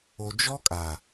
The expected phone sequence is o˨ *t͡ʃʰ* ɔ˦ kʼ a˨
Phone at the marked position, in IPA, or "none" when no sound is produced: d͡ʒ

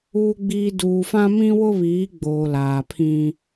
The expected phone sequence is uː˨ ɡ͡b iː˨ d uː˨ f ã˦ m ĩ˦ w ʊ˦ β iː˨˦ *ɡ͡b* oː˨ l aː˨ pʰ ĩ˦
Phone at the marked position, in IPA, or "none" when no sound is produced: ɡ͡b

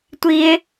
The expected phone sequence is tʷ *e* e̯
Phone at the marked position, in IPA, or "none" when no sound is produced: i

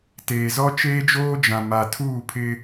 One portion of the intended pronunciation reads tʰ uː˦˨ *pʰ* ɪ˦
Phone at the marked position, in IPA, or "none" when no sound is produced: pʰ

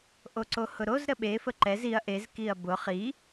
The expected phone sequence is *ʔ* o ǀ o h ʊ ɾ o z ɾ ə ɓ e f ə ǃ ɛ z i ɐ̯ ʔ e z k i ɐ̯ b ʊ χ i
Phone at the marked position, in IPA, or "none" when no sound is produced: ʔ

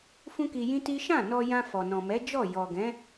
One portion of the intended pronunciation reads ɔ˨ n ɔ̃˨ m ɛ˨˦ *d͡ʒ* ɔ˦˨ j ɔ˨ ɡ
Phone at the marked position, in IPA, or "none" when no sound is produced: d͡ʒ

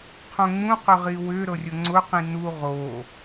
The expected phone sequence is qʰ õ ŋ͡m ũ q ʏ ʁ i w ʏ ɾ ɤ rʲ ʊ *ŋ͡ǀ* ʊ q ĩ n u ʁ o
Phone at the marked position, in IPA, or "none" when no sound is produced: ŋ͡ǀ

